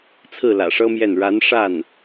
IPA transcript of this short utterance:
t͡sʰɹ̩˥˩lä̰˨˩ʂɤ˥mjɛ˥˩n ɻa˧˥nʂa˥˩n

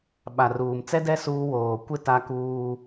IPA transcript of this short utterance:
ɓa˨ruː˨m t͡sɛ˦dɛ˦ suː˦ woː˨kʷɪ˦ ta˦kuː˦

